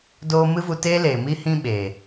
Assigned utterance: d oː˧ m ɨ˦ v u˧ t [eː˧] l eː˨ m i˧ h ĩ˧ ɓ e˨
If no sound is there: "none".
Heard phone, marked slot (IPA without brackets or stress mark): eː˦